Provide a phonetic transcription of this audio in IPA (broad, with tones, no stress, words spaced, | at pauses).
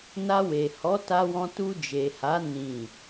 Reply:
na˧we˨ hɔ˨˦ta˧wɔ̃˧ tu˧d͡ʒe˨ha˨˦ nĩ˦˨